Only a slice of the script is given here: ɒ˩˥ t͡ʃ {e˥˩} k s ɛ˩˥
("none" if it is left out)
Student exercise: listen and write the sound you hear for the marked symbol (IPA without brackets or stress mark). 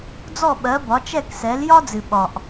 ɛ˥˩